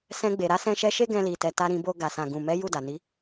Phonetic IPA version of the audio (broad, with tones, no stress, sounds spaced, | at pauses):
s ɛ̃˧ ɡ͡b e˨ ɾ a˨˦ s ɛ̃˧ ʃ ɛ˧ ʃ e˦ ɡ ɛ̃˧ l i˨ t ɛ˨ t a˧ ɾ ĩ˧ b o˧ ɡ a˨ s ã˨ ɡ ũ˨ m ɛ˨˦ j u˦˨ d a˨ n i˨˦